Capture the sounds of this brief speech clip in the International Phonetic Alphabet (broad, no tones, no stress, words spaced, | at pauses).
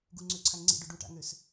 ɡuŋ͡ǀøǀʰaŋ ŋ͡ǀḭɖo ɖuʈa̰ŋøs